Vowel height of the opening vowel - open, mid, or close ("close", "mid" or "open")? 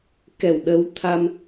mid